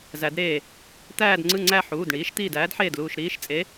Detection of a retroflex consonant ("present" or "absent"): present